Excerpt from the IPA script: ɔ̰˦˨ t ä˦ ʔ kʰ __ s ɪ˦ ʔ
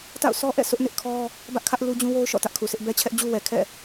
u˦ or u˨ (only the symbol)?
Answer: u˨